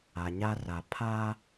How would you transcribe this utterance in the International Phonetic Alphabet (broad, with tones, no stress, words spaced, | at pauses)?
a˨ɲa˦ra˨ pʰaː˦